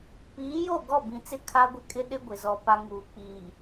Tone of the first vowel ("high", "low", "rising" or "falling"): rising